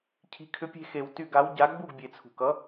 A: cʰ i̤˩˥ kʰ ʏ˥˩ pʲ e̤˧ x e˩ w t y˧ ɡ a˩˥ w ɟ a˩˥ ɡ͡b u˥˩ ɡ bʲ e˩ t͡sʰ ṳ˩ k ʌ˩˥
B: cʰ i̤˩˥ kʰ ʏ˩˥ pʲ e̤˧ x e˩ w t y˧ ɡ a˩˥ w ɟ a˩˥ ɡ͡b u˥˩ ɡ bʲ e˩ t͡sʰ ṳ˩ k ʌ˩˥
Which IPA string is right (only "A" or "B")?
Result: B